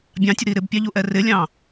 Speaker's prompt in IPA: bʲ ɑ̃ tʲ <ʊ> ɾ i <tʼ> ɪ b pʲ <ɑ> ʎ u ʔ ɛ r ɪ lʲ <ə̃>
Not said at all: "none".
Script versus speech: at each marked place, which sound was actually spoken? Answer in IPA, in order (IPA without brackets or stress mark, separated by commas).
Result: ʊ, ɾ, ɑ, ɑ̃